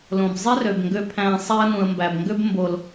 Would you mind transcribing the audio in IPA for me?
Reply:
l õ˨ b zˤ e˦ r ø˨ b ŋ ɡ ø˧ pʰ æ̃˧ sˤ æ˧ ə̯ n ũ˨ ə̯ m b æ˨ b ŋ ɡ ø˧ b m b o˨ l

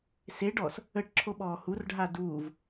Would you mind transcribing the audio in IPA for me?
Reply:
s e ɖ ɔː s | ə ʈ ǁʰ o ɓ ɔː h u r ɖʱ a d uː v

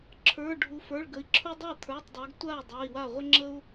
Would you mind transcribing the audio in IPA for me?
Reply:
ǁʰ ə˞˩˧˩ ɖʱ u˩˧ f ə˞˩˧˩ ɭ ɡ ə˩˧ i̯ ǁʰ u˦ dˤ a˥˩ t̪ʰ ə˞˩˧˩ tˤ dˤ ə˞˩˧ ɡ tʷ a˥˩ y̯ dˤ ə˞˩˧˩ i̯ w a˥˩ ʁʷ ə˦ ŋ͡ǁ ə˦ u̯

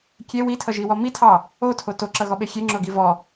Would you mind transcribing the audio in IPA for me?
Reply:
kʲ e w i tʰ ʌ ʒ i w ɔ m i tʰ ɑ | o tʰ o t o ǁ ʌ ɣ ɔ ɓ e xʲ e ŋ͡ǁ o ɡ i v ɔ

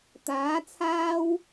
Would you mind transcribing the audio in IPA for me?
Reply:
t̪ aː˨˥ t͡sʰ aː˥ w

